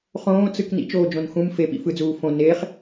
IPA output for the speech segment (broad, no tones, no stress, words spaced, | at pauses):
χõːt͡sɯk nḭt͡ʃoːd͡ʒõn xũm fepḭ fɯd͡zuː fõ neχ